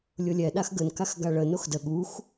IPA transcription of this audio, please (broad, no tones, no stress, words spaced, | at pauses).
lʲʊlʲɛ ɗaxɡən kaxɡaɭə noxdə ɠux